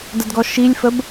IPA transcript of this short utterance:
d ə d ɡ ɔ ʃ i lʲ f ə b

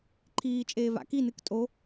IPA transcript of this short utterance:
ǃʰ iː t͡ʃʼ eː v a̰ k i n ɨ k tʼ o

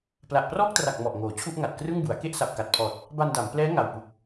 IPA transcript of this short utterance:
p l a˨˩ ʔ p r ɔː˥˩ k̚ t r a˨˩ k̚ m ɔ˨˩ ʔ ŋ oː˩˦ t͡ɕʰ u˥˩ ʔ ŋ a˨˩ t̚ k r ɯ˥˩ ŋ b u˩˦ a̯ k e˥˩ ʔ s a˨˩ p̚ k a˨˩ t̚ pʰ ɔː˨˩ t̚ | b a˧ n d a˩˦ m p l ɛː˦˥ ŋ a˨˩ w p u˨˩ k̚

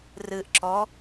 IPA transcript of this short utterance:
r ɨ ʔ ǁ ɔ

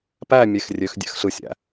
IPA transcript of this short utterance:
p æ mʲ e x rʲ ø x dʲ æ̰ x ɬ ɯ sʲ æ̰

